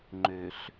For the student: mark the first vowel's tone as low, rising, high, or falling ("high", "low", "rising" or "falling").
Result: low